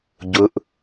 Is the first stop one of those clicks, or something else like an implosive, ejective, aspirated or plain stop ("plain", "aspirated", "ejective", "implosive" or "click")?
plain